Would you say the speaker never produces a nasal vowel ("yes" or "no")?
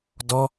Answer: yes